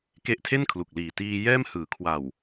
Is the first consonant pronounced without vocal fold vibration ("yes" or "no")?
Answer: yes